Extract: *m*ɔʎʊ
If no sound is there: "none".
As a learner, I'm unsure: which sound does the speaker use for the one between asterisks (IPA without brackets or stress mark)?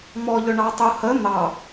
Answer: m